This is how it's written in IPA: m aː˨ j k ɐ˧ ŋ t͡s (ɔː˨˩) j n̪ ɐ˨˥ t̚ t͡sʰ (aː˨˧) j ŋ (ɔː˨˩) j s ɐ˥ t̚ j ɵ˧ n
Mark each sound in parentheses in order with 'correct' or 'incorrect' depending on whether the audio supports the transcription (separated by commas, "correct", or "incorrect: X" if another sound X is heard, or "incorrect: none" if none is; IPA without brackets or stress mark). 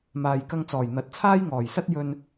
correct, incorrect: aː˥, correct